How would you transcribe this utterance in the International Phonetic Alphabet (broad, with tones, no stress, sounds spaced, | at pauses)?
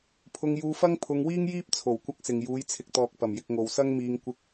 pʰ ʊ˧ ŋ j uː˧ f ɐ˥ ŋ pʰ ʊ˧ ŋ w iː˥ ŋ j iː˥ p̚ t͡sʰ o˨˩ w kʷ ɐ˥ k̚ s ɪ˨ ŋ j uː˨˧ j t͡sʰ ɪ˨ k̚ t̪ ɔː˨ k̚ p ɐ˨˩ m j ɪ˧ k̚ ŋ o˨ w s ɐ˥ ŋ m iː˧ ŋ kʷ ɪ˧ k̚